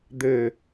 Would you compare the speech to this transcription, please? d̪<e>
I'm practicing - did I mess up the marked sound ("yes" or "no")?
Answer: yes